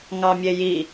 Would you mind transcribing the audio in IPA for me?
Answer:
ŋ ɑ mʲ e j i

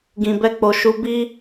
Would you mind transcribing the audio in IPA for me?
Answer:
ɡ ĩ˨ b ɛ˧ k͡p o˨ ʃ u˨˦ b i˦

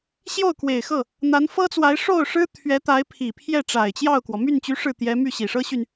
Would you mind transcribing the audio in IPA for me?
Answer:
ɕ j o˥˩ ʊ̯ k w e˨˩ ɪ̯ x ɤ˥˩ | n̪ a˧˥ n f ɤ˥ t͡s w a˧˥ ɪ̯ ʂ o˥˩ ʊ̯ ʂ ɻ̩˥ t̪ʰ ɥ ɛ˧˥ t̪ a˧˥ ɪ̯ pʰ i˨˩ pʰ j ɛ˥˩ ʈ͡ʂ a˨˩ ɪ̯ t͡ɕ j ɑ˥˩ ʊ̯ k w ɔ˩ m y˥˩ n t͡ɕ y˧˥ ʂ ɻ̩˥˩ t̪ j ɛ˧˥ m y˥˩ ɕ i˨˩ ʂ ɤ˥ ɕ y˨ n

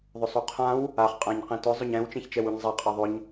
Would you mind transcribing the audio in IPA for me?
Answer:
ðˤ ʊ sˤ o qʰ ã w | a χ qʼ ã ɲ q ẽ t ʊ zˤ ʊ ɲ ɛ̃ w t͡ʃ ẽ ç t͡ʃ ɛ w u ɲ zˤ a qʼ a ðˤ ʊ ɲ

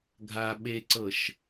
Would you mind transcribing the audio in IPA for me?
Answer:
ɡʱ a ɓ e ǀ ɤ ʃ

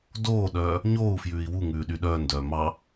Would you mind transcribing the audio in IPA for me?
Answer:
d oː ɗ œː | ɲ oː u̯ f j ʉː i̯ w u ŋ ʉː ɗ y ɗ œː n d œː m ɑ

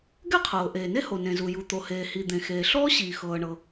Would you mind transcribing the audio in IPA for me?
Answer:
ɡ ɛ˥ qʰ ɤː˩ ʔ eː˩ n e˥ h o˩ n ẽ˩ z u˩ j u˩ t̪ o˩ h eː˩ h i˩ d̪ ẽ˩ x eː˩ ɬ ɔː˥ ɕ iː˩ x ɤː˩ ɳ ɤ˩

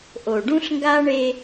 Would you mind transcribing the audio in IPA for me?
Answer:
ʔ o˨ ɖ ũ˦ ɬ ŋ ɡ a˦ ɳ e˦

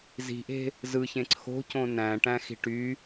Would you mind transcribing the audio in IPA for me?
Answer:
z i̤ ʔ e̤ | z ɯ ç ẽ ǀʰ o̤ c õ n æ̃ ʈ æ̃ x i̤ ʈ y

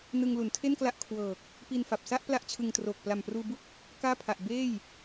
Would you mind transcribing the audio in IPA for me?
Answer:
n ɯ˧ ŋ l u˩˦ n tʰ e˥˩ n k l a˦˥ ʔ kʰ w ɤː˨˩ k̚ | p i˧ n f a˨˩ p̚ s a˥˩ ʔ p l a˥˩ ʔ t͡ɕʰ ɯ˧ ŋ t r oː˨˩ k̚ p l a˨˩ m p r uː˧ b u˥˩ k̚ | k aː˥˩ pʰ a˨˩ ʔ b eː˥˩ j

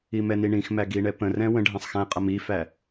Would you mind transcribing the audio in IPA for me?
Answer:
i m ɛ n i ɳ ĩ x m æ ɡ i ɳ ɛ p ə̃ r ɛ̃ w ə̃ ɖʱ ɛ̃ sˤ x æ̃ qʼ ʌ m i f æ

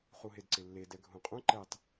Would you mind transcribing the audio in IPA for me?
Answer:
χ u ɦ e d ǀ ɪ lː e d ɛ ɡʱ ũ qʼ ũ ǃ ɛ tˤ

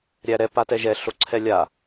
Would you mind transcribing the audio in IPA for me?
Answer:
ɾʲ æ ɾ ɛ p a t ɛ ʒ ɛ ɬ o ǀʰ ɛ lʲ a

